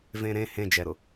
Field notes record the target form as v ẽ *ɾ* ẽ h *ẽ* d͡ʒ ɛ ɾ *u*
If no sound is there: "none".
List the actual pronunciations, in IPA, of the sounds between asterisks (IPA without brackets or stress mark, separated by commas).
ɾ, ẽ, ʊ